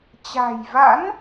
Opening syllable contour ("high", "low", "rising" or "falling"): low